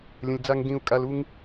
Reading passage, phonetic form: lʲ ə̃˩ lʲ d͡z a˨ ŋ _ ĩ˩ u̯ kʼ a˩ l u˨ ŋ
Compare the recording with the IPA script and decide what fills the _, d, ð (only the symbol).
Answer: d